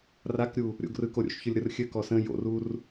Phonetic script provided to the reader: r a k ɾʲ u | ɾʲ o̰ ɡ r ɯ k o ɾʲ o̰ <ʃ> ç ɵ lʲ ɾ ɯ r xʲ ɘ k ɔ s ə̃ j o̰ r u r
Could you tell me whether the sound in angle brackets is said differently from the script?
no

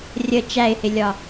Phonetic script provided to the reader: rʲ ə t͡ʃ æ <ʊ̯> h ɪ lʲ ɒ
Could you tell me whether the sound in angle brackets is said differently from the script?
yes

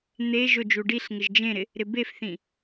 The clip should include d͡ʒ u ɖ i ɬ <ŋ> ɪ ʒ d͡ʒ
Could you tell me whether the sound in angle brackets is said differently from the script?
no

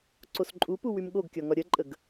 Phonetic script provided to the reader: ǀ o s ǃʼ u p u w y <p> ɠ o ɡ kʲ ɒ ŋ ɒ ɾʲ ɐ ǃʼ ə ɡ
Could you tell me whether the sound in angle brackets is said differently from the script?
yes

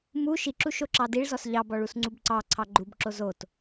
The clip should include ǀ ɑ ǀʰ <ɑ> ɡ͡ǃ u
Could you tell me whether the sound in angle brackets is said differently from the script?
no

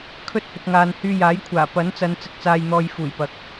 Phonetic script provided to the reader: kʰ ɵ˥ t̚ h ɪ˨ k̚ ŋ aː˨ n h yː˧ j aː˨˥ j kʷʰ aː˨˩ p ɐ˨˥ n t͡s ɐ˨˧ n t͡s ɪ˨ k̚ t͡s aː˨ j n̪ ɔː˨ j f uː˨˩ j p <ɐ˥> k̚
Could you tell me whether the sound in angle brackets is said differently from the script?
yes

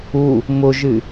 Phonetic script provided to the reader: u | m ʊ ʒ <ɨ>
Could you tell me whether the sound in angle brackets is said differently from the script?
no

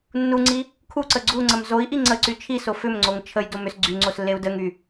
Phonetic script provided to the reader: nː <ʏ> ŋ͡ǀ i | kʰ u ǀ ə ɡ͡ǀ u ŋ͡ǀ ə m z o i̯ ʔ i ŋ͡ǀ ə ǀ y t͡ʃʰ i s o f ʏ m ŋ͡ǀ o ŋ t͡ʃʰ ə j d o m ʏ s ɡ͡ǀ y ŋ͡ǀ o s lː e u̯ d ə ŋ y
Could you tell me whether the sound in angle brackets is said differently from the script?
yes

